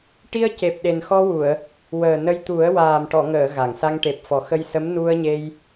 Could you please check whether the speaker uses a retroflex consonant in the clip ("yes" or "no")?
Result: yes